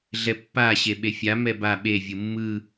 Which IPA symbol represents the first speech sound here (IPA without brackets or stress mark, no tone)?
ɮ